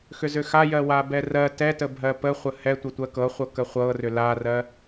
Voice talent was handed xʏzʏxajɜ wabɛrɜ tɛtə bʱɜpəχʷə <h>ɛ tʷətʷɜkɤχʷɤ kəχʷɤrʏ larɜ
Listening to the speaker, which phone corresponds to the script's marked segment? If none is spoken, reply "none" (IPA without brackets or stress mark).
h